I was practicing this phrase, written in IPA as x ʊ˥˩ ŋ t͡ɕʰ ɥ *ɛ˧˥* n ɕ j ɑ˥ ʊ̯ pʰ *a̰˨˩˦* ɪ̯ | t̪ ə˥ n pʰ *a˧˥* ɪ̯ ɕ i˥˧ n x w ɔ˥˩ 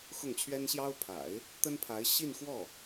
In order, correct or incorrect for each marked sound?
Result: incorrect: ɛ˥, correct, correct

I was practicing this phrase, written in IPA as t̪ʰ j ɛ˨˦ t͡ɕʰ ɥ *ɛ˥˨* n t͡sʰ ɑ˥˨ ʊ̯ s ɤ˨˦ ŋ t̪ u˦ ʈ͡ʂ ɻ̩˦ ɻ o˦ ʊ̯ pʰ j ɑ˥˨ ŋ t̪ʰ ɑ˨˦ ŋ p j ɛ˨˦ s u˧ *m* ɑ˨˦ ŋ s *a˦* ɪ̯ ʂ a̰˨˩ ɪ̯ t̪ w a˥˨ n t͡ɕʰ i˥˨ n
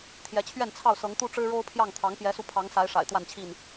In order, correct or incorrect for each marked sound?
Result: correct, incorrect: pʰ, incorrect: a˨˦

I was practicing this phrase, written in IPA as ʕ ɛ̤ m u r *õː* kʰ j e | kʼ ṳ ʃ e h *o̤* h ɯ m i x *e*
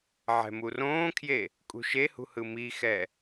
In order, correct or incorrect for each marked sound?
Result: correct, incorrect: ṳ, incorrect: ɛ

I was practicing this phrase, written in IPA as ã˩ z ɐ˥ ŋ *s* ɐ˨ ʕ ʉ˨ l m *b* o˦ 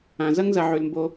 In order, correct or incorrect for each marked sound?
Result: incorrect: z, correct

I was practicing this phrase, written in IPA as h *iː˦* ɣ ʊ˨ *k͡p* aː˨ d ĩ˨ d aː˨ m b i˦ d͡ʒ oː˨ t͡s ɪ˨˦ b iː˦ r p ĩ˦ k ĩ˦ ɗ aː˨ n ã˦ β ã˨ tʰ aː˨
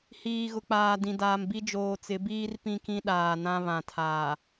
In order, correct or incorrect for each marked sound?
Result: incorrect: iː˨, correct

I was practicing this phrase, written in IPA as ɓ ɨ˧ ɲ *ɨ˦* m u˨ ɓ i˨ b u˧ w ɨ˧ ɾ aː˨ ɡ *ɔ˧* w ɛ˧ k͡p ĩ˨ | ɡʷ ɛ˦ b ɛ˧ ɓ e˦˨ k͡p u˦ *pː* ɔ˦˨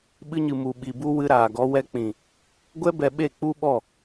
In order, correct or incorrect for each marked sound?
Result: incorrect: ɨ˨, correct, incorrect: ɓ

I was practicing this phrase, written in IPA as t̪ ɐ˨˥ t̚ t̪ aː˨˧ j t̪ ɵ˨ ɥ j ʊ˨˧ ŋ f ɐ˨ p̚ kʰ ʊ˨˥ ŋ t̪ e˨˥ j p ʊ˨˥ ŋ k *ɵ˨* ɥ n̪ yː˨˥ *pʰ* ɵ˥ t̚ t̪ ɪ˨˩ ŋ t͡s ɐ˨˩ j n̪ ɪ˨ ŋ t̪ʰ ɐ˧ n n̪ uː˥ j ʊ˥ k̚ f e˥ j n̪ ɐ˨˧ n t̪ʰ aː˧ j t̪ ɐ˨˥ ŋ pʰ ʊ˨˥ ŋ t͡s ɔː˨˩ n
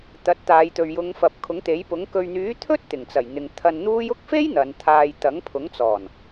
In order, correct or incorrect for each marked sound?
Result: correct, incorrect: t̪ʰ

